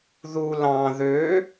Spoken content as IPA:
ð u l ɑ̃ ð ø

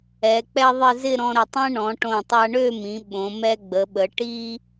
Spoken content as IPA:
ɛ˩˧ k͡p ɛ˥ ðˤ ɪ˥˧ z ɪ˥˧ ɾ ɔ̃˧ ɾ ə˧˩ tˤ ɛ̃˥ ɳ ɔ̃˩˧ ʈ õ˧˩ tˤ a˧ ɳ ø˥˧ m ĩ˩˧ ɓ õ˩˧ m ɛ˧ ɡ͡b ə˩˧ ɓ ə˩˧ ʈ i˥

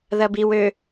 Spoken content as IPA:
ð ɐ b i w ø

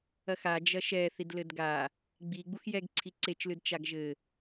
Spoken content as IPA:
ɐ x a d͡ʒ ɐ ʃ ɛ θ i d l ɘ d ɡ a | ɡ͡b i ɡ͡b u x j ɛ ɡ ǀʰ i ǀ e t͡ʃ l ɨ d t͡ʃ a ɡ ʒ ɘ

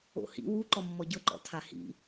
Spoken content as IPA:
o̰ h ḭ w u ǃ ɔ mː ɔ ɟ ɤ ǃ ɔ̰ tʰ a h ḭ

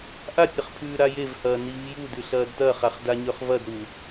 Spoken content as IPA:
ʔ a tʲ ɾ ɐ χ pʰ ʉː ɾ a j e v h ɐː n i v j u d ʉ ɬ ɐː d t ɐː χ a χ d a ɲ ɵ χ v ɐ d ɾ u

